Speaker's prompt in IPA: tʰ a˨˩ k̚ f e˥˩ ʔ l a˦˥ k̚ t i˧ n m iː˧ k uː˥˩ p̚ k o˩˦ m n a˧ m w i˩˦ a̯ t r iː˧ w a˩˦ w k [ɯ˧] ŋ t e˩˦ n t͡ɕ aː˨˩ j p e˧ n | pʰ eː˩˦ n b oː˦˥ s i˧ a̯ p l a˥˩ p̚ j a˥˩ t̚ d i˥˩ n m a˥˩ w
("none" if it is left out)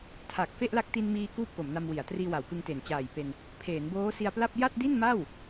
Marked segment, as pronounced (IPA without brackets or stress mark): ɯ˧